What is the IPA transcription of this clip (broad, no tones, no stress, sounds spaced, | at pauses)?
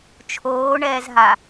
t͡ʃʰ oː ɳ ɛː z ɦ a